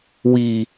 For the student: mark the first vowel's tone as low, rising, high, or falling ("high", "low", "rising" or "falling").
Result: low